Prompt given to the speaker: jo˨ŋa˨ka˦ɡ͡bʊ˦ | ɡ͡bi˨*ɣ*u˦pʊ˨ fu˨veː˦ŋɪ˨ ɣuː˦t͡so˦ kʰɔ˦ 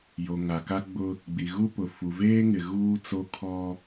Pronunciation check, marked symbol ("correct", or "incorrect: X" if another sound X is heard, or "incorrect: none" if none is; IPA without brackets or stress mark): correct